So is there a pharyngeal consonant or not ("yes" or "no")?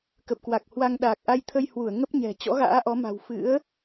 no